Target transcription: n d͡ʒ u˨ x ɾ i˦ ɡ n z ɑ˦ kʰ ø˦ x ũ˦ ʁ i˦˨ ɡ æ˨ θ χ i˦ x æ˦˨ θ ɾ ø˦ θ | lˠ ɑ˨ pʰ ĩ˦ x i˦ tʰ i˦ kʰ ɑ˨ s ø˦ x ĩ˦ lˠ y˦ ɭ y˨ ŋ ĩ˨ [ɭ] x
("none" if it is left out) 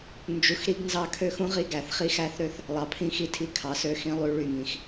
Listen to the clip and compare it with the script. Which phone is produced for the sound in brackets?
none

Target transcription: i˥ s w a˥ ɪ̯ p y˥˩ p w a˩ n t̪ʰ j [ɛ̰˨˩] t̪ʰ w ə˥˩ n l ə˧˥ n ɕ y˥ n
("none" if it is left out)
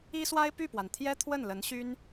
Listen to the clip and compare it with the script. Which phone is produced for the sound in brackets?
ɛ˥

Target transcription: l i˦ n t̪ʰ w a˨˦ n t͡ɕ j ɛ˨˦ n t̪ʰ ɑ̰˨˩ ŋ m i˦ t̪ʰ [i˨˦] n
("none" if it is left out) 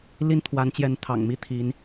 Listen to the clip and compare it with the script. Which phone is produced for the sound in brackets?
i˨˦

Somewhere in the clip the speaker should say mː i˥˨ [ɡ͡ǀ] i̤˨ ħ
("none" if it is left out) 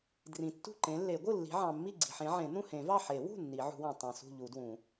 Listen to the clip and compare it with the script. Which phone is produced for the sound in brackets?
ɡ͡ǀ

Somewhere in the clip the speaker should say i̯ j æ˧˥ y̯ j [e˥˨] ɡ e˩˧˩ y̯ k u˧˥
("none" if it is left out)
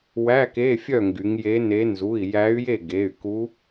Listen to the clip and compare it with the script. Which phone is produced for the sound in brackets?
e˥˨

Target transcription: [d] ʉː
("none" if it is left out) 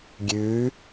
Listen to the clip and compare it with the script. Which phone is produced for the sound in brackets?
ɡʲ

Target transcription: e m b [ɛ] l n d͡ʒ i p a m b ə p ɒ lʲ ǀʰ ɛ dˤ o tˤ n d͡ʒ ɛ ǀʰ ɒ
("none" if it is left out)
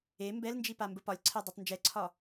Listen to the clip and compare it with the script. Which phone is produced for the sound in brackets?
ɛ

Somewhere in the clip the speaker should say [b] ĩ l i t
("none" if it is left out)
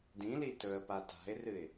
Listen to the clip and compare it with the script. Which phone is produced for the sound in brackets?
d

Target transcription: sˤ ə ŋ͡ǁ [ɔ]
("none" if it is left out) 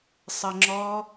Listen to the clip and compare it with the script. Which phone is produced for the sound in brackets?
ɔ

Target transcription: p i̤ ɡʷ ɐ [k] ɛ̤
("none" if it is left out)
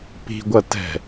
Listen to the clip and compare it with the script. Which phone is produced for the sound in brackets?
t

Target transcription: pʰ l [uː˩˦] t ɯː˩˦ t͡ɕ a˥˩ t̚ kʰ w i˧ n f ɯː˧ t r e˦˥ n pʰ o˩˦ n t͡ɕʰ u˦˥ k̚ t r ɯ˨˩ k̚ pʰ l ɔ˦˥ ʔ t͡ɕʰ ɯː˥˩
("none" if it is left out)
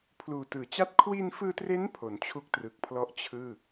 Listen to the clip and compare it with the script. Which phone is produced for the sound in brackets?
uː˨˩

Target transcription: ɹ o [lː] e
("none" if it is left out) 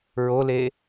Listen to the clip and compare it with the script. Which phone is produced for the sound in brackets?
l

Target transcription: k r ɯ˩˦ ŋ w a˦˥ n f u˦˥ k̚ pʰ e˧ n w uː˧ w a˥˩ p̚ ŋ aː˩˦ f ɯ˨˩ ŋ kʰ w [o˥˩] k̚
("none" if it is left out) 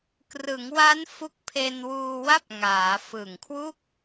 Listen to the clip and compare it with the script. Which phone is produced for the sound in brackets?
u˥˩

